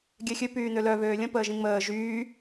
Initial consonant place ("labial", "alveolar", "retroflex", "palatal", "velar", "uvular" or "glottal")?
velar